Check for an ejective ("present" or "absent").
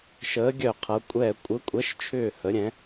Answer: present